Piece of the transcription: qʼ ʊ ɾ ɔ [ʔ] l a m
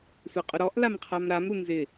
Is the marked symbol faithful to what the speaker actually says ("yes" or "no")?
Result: yes